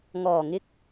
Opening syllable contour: low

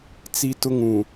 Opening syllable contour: high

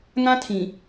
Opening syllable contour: high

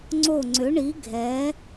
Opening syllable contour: falling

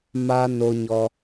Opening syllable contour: high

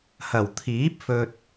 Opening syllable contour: low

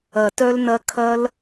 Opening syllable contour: low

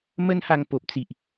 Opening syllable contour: high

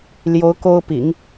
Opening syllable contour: rising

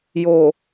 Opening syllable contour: low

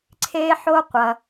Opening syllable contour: high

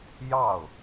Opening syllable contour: falling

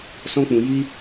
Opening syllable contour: high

